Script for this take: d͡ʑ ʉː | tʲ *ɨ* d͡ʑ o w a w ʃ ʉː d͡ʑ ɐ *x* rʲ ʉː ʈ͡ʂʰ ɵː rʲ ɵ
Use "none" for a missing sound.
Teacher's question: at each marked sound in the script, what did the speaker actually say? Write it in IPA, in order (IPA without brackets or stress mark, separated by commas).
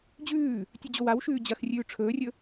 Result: ɨ, x